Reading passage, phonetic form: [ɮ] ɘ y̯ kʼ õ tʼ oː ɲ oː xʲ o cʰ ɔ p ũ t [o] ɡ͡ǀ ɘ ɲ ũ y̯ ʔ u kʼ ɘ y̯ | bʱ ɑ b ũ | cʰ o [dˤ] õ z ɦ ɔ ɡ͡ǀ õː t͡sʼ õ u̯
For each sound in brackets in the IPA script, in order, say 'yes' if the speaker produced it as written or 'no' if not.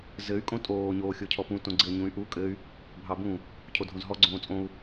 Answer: no, no, no

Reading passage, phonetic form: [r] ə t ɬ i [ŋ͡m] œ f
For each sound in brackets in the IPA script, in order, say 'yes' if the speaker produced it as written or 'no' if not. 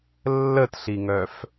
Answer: no, no

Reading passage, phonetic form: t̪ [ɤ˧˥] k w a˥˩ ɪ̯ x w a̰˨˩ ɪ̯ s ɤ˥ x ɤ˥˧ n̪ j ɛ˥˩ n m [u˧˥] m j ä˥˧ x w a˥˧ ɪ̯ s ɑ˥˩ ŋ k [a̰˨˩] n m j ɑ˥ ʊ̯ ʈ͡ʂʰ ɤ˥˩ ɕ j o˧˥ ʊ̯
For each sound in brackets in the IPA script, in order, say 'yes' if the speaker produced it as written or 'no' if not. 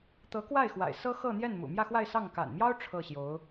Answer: yes, no, yes

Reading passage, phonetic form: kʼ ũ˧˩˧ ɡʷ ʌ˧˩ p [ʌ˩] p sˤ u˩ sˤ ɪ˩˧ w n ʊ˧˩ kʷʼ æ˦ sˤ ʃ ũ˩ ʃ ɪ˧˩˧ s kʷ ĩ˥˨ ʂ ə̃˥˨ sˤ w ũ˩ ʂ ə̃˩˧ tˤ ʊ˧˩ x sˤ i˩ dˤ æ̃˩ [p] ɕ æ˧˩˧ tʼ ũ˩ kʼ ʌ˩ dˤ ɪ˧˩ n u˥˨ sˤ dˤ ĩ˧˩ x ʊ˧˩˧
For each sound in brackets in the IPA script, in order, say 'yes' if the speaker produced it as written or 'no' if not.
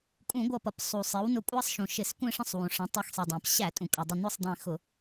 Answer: yes, yes

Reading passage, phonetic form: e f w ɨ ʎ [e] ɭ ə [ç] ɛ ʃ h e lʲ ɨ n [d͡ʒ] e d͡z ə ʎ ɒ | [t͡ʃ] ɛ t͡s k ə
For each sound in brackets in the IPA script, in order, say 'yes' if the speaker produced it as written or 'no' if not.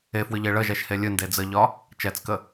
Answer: yes, no, no, yes

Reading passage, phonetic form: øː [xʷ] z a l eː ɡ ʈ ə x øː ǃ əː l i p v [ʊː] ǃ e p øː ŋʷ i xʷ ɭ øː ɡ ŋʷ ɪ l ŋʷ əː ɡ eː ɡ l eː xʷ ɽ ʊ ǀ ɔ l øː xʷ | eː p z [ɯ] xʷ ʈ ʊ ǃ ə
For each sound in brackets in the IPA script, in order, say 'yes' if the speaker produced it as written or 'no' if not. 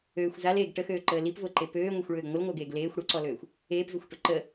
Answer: yes, yes, no

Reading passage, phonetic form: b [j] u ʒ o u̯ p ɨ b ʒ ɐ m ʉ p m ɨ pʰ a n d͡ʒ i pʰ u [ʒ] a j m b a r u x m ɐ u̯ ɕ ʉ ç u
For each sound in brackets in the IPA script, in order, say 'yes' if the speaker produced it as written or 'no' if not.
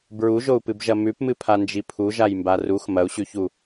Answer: no, yes

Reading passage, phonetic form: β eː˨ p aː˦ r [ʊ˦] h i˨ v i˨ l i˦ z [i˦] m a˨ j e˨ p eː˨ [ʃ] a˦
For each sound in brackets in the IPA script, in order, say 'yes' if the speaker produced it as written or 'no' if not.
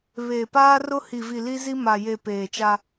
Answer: yes, yes, no

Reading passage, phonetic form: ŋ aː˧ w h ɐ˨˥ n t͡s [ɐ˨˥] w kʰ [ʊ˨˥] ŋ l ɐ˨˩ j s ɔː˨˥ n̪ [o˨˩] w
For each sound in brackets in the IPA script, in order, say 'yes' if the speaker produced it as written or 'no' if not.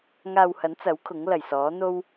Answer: yes, yes, no

